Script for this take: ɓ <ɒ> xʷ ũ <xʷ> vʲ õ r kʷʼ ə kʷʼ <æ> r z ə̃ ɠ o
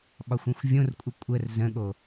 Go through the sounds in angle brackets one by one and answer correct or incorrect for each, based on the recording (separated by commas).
correct, correct, incorrect